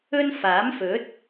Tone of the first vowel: high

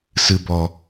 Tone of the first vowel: low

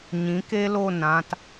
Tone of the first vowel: rising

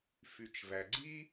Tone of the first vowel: low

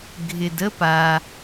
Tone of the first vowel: low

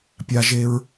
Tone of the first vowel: high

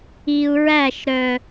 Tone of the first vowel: low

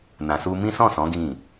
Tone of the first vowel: low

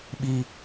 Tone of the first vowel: high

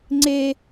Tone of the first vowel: high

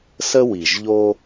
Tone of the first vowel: high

